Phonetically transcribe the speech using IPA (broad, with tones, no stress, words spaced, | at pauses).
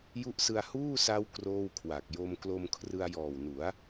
ju˦˥ʔsɯ˧a̯ huː˥˩sa˦˥w kroː˥˩wkʰwa˨˩k̚ jo˧mklo˧m kʰrɯ˧a̯jɔː˨˩wnu˩˦a̯